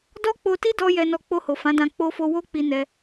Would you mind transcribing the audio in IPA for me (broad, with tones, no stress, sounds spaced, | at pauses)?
d ɔ˦ k͡p o˧ t i˦ d ɔ˧ j ɛ˧ n ɔ˧ k͡p o˧ h o˨ f ã˨˦ d ã˧ k͡p o˧ f o˧ w o˦ k͡p i˧ n ɛ˧